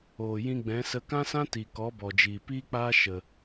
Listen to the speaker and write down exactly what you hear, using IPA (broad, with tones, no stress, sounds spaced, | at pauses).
oː˨ j ĩ˧ ɡ͡b ɛ̃˨˦ s ə˧ k ã˦ s ã˦ t i˨ k ɔ˨˦ b ɔ˨ d͡ʒ iː˨ p iː˦ k͡p aː˦ ʃ ə˧